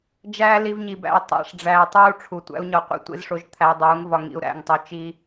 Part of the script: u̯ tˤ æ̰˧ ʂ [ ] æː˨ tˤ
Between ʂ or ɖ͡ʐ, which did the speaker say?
ɖ͡ʐ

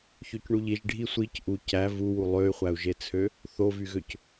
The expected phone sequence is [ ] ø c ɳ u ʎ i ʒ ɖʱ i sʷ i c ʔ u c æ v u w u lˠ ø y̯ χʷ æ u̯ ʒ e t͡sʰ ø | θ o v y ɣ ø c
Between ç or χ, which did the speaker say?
ç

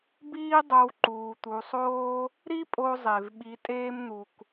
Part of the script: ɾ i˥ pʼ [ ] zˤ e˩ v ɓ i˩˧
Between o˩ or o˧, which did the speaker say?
o˧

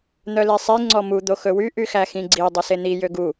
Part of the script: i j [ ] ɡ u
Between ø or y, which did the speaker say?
ø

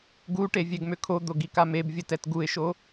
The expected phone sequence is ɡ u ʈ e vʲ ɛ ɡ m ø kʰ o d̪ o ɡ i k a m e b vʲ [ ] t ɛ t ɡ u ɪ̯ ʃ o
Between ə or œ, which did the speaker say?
ə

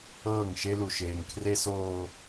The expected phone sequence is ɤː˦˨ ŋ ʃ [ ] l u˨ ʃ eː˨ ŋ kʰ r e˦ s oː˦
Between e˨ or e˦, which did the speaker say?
e˦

